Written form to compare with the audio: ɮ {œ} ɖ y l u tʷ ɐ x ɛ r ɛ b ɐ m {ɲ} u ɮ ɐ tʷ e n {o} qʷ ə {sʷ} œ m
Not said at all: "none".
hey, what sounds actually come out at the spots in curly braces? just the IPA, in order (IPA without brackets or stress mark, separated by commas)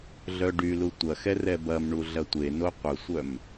œ, ɳ, o, sʷ